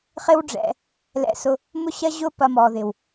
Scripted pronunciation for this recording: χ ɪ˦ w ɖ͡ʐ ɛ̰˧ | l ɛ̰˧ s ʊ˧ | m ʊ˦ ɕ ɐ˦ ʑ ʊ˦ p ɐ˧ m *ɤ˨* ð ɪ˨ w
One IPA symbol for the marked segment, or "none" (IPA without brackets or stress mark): ɔ˨